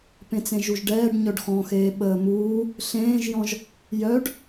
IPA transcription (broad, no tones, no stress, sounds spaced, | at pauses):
p ẽ t͡s ẽ ʒ u ʒ ɖ ɛː ɖ ɲ œ ɖ x ɔ̃ x eː ɓ əː m uː | ɬ ẽː ʒ j ɔ̃ ʒ | j œ ɖ